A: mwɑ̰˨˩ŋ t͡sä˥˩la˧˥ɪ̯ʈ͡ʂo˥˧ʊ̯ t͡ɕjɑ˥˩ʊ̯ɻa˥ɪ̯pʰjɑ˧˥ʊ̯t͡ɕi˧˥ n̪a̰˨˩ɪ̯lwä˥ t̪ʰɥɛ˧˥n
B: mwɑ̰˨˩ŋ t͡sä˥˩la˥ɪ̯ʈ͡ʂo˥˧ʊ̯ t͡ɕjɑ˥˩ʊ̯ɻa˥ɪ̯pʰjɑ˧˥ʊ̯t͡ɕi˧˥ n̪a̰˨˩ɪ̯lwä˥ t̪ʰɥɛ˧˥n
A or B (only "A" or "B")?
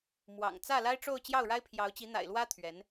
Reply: B